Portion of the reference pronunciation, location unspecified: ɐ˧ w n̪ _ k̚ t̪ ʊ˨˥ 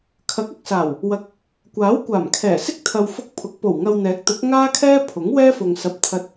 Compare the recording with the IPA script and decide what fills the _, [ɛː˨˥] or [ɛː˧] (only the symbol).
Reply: ɛː˨˥